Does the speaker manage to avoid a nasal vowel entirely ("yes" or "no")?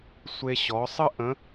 no